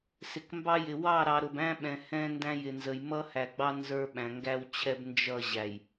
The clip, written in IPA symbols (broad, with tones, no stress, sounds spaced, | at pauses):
s ɪ˨ k m b ɑ˦ j ɪ˨ w ɑ˦˨ ɾ ɑ˨ ɾ ʊ˨ b æ̃˦ ɓ ɛ̃˨ h ɛ̃˦ n d æ̃˦ j ɪ˨ n z ə˨ j m ʌ˦ h æ˨ ɡ͡b ɑ˦ n z ə˞˦ ɓ æ̃˨ ŋ ɡ æ˦ w t͡ɕʰ ɛ˦ b n d͡ʒ ʌ˦˨ ʑ æ˨ j